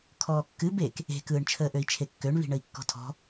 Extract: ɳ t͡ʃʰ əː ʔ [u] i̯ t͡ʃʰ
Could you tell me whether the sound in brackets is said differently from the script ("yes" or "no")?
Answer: yes